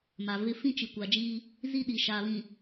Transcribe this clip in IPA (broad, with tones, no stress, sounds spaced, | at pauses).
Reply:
m a˨ v ɪ˦ f ĩ˦ t͡ʃ i˨ kʷ a˨ d͡ʒ iː˦ | z i˦ ɗ i˨ ʃ aː˨ β ĩ˨